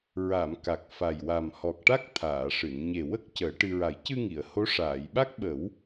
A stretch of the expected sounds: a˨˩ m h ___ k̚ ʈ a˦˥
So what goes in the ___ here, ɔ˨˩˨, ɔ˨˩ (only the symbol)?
ɔ˨˩